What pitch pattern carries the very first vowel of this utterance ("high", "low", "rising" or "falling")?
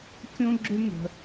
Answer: high